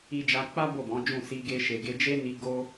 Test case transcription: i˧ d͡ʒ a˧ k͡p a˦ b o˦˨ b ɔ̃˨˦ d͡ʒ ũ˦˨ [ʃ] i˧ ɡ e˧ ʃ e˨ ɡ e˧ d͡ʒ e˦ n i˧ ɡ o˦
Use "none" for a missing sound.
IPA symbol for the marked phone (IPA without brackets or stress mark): s